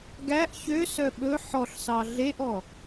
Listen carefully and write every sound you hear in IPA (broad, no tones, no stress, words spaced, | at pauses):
ɡæʔ çøsœ ɓɵ ħɔɬsɑ ɮeʔɔ